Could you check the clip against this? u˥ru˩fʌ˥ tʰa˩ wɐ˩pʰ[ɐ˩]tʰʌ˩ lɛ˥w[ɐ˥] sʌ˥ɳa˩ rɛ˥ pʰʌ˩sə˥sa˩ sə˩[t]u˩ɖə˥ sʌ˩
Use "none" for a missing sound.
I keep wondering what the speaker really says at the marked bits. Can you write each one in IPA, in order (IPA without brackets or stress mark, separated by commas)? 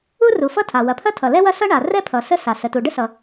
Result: ɐ˥, ɐ˥, t